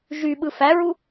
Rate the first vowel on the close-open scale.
close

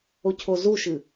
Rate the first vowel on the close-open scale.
mid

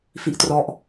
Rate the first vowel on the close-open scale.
close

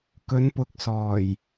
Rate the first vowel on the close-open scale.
mid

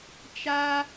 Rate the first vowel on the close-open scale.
open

